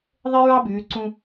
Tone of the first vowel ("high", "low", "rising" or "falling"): high